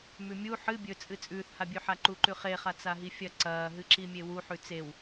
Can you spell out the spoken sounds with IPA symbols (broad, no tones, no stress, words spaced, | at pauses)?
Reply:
mʉmʲu ħɨ bʲɵt͡sʼɨ t͡sʼʉːθhabʲʉħa ǃuǃʉχeχa t͡saɦifʲɐ ǀɐːɦɨǁimʲe wuħʉ t͡sew